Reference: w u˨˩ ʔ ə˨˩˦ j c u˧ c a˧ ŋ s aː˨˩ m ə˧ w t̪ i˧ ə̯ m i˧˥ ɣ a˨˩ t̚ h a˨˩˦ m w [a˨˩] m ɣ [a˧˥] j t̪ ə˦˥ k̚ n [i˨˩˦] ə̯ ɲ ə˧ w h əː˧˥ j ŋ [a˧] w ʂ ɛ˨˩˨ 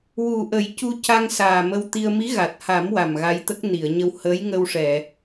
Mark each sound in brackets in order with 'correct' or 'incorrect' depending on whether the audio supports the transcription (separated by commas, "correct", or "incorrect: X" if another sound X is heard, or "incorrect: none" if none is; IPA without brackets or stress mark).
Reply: correct, correct, incorrect: i˨˩˨, incorrect: ə˧